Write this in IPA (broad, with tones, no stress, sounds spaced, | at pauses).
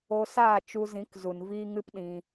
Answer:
o˧ s aː˦˨ t͡ʃ u˧ z ĩ˨˦ k z u˨ n v iː˦ ŋ ɨ˦ p ɗ ĩ˧